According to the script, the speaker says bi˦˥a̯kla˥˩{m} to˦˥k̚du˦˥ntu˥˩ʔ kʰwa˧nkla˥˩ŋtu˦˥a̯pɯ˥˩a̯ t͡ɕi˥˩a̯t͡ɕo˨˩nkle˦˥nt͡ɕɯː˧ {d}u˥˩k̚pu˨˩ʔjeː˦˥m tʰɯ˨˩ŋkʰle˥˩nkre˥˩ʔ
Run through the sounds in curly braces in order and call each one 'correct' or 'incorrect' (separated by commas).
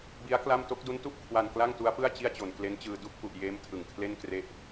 correct, correct